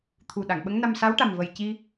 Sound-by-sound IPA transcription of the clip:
t̪ʰ u˨˩ ɗ a˨˩˨ ŋ ɓ ə˧˥ ŋ n a˧ m s a˧˥ w ʈ a˨˩ m v ə˨˩ j c i˧

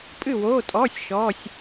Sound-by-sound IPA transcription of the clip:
pʼ ɨ˥˨ w oː˧˥˧ tʼ ɔː˧˥˧ sʲ ʃ ɔː˧˥˧ sʲ

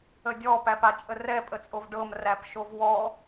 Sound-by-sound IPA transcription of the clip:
ə dʲ ɔ p æ p a t͡ʃʼ ə r ɛ pʼ ə t͡sʼ o v ɖ ɤ m r æ p ʃ o v w ɔ

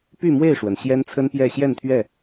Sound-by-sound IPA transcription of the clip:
p y˥˨ m w e˥˨ ɪ̯ ʂ w ə˩ n ɕ j ɛ˦ n t͡sʰ ə˦ n p j ɛ˥˨ ɕ j ɛ˥˨ n t̪ʰ ɥ ɛ˥˨

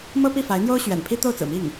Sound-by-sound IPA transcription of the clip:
m ɤ˥ p i˥˩ f a˧˥ ɪ̯ n̪ j o˥ ʊ̯ ɕ ɥ ɛ̰˨˩ n pʰ i˥ t̪ o˥˩ ʊ̯ t͡s ɹ̩˨˩ m i˥˩ ŋ

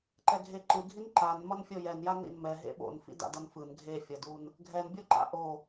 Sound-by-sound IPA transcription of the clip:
ǃ ɛ ɡʱ e ǃ ɯ ɡʱ i n ǃ a n m ʌ n fʲ o j ɛ n j a n ḭ n m ɛ ɦ ḛ ɓ o̰ n f ḭ d a̰ d ʌ n f ɯ n ɡʱ e fʲ ʌ d u n | ɡʱ ɛ n bʲ o ǃ a̰ ʔ o

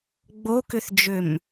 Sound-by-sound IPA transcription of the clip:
ɡ͡b o k ʏ θ d͡ʒ ø m

